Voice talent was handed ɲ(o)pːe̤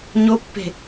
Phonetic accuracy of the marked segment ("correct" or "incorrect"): correct